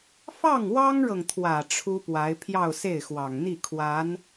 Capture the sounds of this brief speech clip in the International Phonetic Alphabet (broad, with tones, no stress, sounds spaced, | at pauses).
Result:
f ɑ˥˩ ŋ w ɑ˥ ŋ ɻ ɤ˨ ŋ t̪ʰ w ä˨˩ ʈ͡ʂʰ u˥ p w a˧˥ ɪ̯ pʰ j ɑ˥˧ ʊ̯ s e˥˩ ɪ̯ x w ɑ˨˩ ŋ n̪ i˥˩ kʰ w a˧˥ n